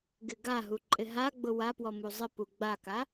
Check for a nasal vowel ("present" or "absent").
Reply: absent